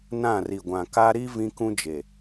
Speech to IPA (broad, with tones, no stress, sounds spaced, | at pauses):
n ã˦˨ r i˨ ɡʷ ã˨ k a˦ ɾ i˦ v ĩ˦ k ũ˦ d͡ʒ e˨